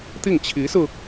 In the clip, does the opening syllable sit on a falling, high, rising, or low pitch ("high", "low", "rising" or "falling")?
falling